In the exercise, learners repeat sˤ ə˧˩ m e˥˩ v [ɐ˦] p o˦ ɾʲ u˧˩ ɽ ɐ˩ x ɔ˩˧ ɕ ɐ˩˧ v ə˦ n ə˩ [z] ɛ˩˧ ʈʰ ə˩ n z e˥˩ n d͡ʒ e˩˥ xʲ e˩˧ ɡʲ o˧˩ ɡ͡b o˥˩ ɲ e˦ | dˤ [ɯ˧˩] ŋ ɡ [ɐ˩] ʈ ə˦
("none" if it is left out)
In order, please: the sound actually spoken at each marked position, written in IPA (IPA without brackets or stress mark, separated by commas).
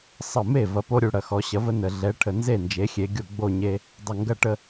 ɐ˧˩, ɮ, ə˧˩, ɐ˥˩